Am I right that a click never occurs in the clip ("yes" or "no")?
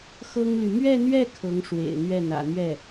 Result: yes